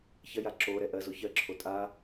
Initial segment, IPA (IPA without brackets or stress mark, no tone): ç